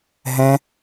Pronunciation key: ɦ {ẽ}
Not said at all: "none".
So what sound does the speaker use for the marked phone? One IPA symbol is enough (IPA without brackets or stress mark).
ɛ̃